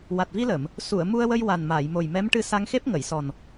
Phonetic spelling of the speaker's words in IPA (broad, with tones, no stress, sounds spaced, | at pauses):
w a˨˩ t̚ v i˧ l ə˨˩˨ m | s u˨˩˨ ə̯ m u˧ ə̯ w ə˧ j w a˨˩ n m aː˨˩˨ j m o˨˩ j m ɛ˧˥ m ʈ ɨ˧ s a˧ ŋ x e˦˥ p̚ ŋ ə˨˩˨ j s ɔ˨˩ n